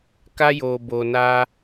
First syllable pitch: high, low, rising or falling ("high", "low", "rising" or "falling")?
high